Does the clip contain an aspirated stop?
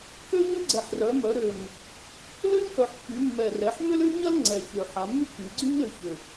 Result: no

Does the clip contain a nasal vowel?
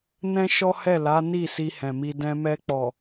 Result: yes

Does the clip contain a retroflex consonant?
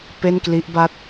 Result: no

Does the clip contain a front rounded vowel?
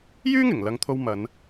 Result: yes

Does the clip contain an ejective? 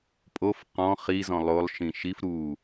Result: yes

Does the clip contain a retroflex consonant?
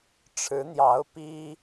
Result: yes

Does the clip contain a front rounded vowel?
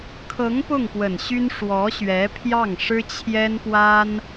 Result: yes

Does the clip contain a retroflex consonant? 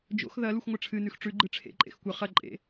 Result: yes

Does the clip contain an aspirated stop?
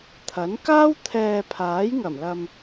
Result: yes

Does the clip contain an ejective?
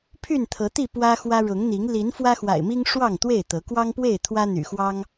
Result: no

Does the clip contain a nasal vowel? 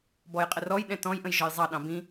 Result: yes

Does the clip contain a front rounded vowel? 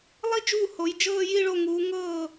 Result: no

